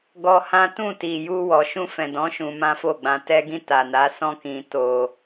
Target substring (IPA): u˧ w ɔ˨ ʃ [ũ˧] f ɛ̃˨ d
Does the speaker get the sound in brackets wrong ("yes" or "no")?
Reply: no